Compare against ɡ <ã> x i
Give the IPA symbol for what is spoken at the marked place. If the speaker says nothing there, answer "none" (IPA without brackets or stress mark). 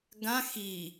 ã